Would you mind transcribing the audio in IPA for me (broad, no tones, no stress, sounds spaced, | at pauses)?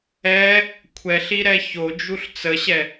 ɛ | kʷʰ ɛ ɬ i ɾ ɛ ç o d͡ʒ u ɬ t͡s ə ɕ ɛ